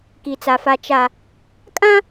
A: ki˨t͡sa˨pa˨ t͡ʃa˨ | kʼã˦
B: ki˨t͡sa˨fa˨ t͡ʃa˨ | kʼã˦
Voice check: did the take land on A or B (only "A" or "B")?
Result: B